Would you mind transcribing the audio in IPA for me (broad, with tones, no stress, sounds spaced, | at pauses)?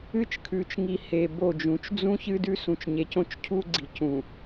ɨ˦ t͡ʃ kʰ ʉ˨ t͡ʃ ŋ i˨ h e˨ b o˦˨ d͡ʒ ũ˨˦ t͡ʃ d͡z ũ˦ ç ɨ˦ d ʉ˦ s ũ˨ t͡ʃ ɲ e˨ c õ˦ t͡ʃ cʰ u˦ ɡ͡ǀ i˨ c ũ˨